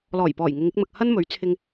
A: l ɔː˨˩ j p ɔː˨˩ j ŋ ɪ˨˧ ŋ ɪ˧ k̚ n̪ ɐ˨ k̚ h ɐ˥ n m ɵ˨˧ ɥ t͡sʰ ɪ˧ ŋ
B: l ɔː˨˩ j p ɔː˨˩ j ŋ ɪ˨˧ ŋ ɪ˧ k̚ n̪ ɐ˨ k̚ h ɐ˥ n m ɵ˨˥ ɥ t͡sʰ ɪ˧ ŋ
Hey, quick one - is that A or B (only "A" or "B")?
B